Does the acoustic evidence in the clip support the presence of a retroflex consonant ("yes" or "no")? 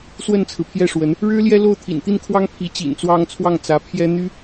yes